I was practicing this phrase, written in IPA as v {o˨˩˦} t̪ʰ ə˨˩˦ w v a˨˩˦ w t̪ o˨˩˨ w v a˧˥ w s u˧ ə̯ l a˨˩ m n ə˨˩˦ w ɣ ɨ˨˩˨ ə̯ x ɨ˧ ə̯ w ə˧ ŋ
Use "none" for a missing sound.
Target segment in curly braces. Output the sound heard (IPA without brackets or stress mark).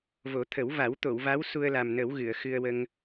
o˨˩˦